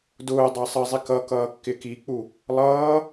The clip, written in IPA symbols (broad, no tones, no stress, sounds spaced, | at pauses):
d ʊː dˤ ɑ sˤ ə zˤ i k ʌ k ʌː kː ɪ k i k͡p u | lˠ ʌː